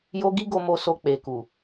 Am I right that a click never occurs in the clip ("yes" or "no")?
yes